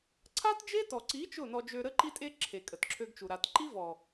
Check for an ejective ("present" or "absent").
present